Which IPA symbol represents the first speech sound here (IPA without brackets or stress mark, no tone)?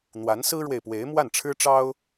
n̪